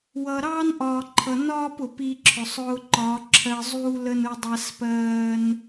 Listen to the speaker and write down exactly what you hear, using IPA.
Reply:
wʌː˨ɾɑː˦nʔɒː˨ǃʰʌ˨ nɒː˦p ʊ˨pi˧ǁʰʊ˨sˤ ʊː˧ǃɒ˨˦ ǁʰɜ˧zˤuː˦ lə˦nʊ˦dˤæ˦s pɜː˦n

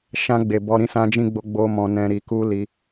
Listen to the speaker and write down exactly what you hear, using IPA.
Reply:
ʃã˧ɡ͡be˨ bɔ˧ɾĩ˦ sã˧d͡ʒĩ˧ɡ͡bo˧ ɡ͡bo˧ mɔ̃˧nɛ̃˧ɾi˧ ku˦ li˦

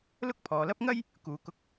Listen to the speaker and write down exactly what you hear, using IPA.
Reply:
lʊ˥k̚pʰɔː˨lɐ˥p̚ ŋɐ˥j | kuː˨kʊ˧k̚

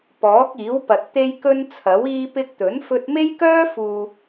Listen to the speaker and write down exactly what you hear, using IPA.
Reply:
pɔː˨˥k̚iː˨˥wpɐ˨t̚ t̪e˧jkɵ˧n t͡sʰɐ˨˥w iː˧pɪ˧k̚ t̪ɵ˨˥n fɵ˧t̚me˥jkœː˥fuː˨

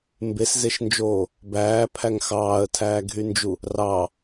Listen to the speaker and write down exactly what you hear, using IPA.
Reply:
mbeszeʃnd͡ʒoː | bæːpʰæŋ xɑːə̯tʰæːɡʱynd͡ʒu | rɑ

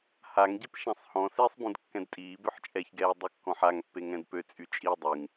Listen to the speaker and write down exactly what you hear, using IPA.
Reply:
haŋɟip ʃãsˤhɔ̃ sesˤbũd kːɛ̃dtʼiː bøħt͡ʃʼɛçɡɛː dˤykːɔ̃ħaŋ pːeŋɛ̃dpø t͡sʼyt͡ʃʼi dˤyŋ

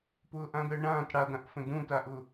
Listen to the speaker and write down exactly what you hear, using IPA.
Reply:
pʊːʔãd̪əːɳãːt ɽad̪ãʔfə̃ dũtaʔʊ

